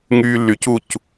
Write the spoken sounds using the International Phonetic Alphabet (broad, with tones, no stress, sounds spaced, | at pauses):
ŋ yː˧ lː y˨ c u˦˨ c